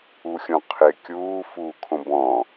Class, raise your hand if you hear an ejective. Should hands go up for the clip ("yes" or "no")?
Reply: no